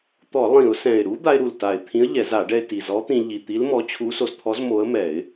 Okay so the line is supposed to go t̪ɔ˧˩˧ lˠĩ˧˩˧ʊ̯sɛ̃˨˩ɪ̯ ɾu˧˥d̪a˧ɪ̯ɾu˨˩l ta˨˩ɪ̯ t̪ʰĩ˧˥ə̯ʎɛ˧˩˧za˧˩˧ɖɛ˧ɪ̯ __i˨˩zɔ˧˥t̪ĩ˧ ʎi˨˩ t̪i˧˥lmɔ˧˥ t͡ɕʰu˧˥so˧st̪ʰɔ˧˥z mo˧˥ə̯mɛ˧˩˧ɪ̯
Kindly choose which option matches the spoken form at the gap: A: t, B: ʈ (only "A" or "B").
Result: A